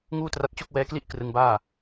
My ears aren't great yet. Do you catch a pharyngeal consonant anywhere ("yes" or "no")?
no